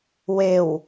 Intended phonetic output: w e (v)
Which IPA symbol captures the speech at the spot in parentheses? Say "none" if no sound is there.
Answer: w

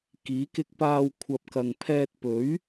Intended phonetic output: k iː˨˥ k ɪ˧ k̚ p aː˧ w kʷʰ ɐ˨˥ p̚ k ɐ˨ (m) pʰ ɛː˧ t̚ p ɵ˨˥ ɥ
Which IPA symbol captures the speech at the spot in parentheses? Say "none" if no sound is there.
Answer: ŋ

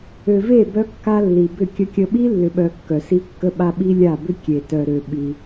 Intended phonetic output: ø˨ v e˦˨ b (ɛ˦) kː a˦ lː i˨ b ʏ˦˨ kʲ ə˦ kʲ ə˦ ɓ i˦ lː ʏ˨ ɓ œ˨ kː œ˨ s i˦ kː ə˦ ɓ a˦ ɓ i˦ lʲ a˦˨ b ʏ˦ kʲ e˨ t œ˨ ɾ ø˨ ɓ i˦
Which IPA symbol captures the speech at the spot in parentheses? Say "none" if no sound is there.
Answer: œ˦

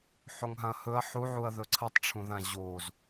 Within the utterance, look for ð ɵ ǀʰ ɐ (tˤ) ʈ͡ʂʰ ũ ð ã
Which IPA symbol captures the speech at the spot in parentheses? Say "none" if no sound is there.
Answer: tˤ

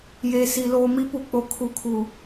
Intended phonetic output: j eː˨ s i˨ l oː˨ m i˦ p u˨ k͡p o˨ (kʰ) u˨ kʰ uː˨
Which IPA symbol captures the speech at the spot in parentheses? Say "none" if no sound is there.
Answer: kʰ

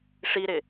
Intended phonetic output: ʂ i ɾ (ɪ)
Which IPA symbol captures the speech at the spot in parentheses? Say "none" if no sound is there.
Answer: ɪ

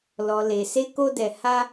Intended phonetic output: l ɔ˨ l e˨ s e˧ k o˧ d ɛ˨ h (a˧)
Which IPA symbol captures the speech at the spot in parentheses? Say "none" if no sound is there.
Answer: a˧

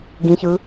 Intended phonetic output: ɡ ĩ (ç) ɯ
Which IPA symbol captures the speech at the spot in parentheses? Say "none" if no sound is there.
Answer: ç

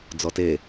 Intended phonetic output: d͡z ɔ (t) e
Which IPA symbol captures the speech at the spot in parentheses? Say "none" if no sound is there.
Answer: t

